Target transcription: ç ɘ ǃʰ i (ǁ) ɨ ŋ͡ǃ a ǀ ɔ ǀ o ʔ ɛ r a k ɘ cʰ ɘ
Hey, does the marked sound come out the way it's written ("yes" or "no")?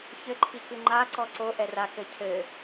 no